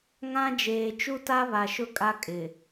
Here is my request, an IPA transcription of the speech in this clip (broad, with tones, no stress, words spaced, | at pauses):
ŋã˦d͡ʒeː˨ t͡ʃu˦ta˦ βa˨ʃʊ˦kʼa˦ kʼɪ˨